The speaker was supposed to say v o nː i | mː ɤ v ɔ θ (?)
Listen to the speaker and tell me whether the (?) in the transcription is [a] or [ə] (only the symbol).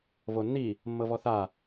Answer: a